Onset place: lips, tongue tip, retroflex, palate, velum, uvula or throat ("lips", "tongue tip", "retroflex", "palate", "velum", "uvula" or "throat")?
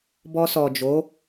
lips